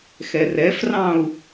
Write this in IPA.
x ɛ r ɛ f r ɑ̃ u̯

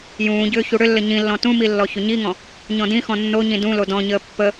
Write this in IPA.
j ũː ɟ ʏː ç u ɽ ʏ lː ə ɲ ĩ lː ɔ̃ t ũ m i lː ɔ ç ʏ ɲ i ŋ ɔ̃ | ɲ ɔ̃ d ĩ x ɔ̃ nː o ɲ ĩ d ũ l o d ɔ̃ ɲ əː pː ə

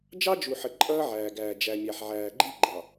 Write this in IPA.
d͡ʒ ɑ˦ d͡ʒ u˨ ħ ə˨ ǃʼ ʌː˦ ʕ æː˨ ɡ æː˨ d͡ʒ æ˨ mʲ æ˨ ħ ʕ æː˨ ɡ͡ǃ i˦ ɡ͡ǃ ɑ˨

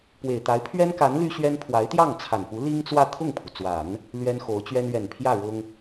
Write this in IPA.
p w e˨˩ ɪ̯ t̪ a˧˥ ɪ̯ pʰ ɥ ɛ˥ n k a˧˥ n l y˥ ɕ ɥ ɛ˥ n pʰ w a˧˥ ɪ̯ t̪ j ɑ˥˩ ŋ t͡sʰ a˨˩ n p u˧˥ l i˥ ŋ t͡s w ä˥˧ t̪ʰ ʊ˥˩ ŋ pʰ u˩ t͡s w a˨˩˦ n | l ɥ ɛ˥ n x o˧˥ ʊ̯ t͡ɕ ɥ ɛ˥ n ɥ ɛ˨˩ n pʰ j ä˥˩ ɻ ʊ˥ ŋ

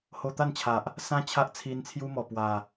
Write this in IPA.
h o˧ t̪ a˥˧ n t͡ɕʰ a˨ ʔ | s ã˦ t͡ɕʰ a˦ ʔ t͡sʰ i˧ n t͡sʰ j u˦ m ɔ˨˩ p w a˨˩

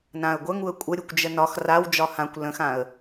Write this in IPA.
n ã ə̯ ɡʷ ə ŋ u ə̯ kʷʼ ə ɾʲ u kʷ d͡ʒ ə n ɒ x r a w d͡ʒ ɒ h ã kʷ l ə̃ x ã ə̯

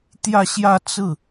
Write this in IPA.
t̪ j ä˥˧ ɕ j ä˥˧ t͡s ɹ̩˥˩

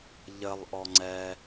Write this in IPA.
ʎ ə lˠ ʔ ɔ ŋ͡ǀ ɛ

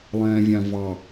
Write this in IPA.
lˠ ɛ̃ː vʲ ã v ɑ

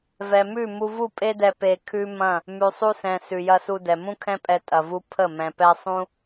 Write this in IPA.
v ɛ˨ m ʉ˦˨ m u˧ v u˦˨ pʼ e˦ d ɛ˧ p e˧ kʰ ʉ˦ m ɐ̃˦˨ | m ʉ˨ sˤ u˧ s ɛ̃˨ s ʉ˨ j ɐ˧ s u˧ d ɛ˨ m ũ˦ kʰ ɛ̃˦ pʼ ɛ˧ tʼ ɐ˧ v u˦ pʰ ə˦˨ m ɛ̃˧ p ɛ˦ sˤ ũ˦

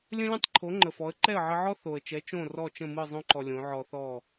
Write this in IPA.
lʲ ə̃˥ lʲ ə̃˥ tˤ ǃʰ o˩˥ ŋ͡ǃ ə˩ f ɔ˩˥ ə̯ ǃ ɛ˥˩ ə̯ ʕ ə˧ ʕ ɔ˥ θ o˩ ə̯ t͡ʃ ɛ˩˥ t͡ʃ õ˥˩ r ɔ˥˩ t͡ʃ ə̃˥˩ m ɯ˥˩ zˤ õ˥ ǃ ɔ˩ lʲ õ˩˥ ʕ ɔ˧ θ ɔ˥˩

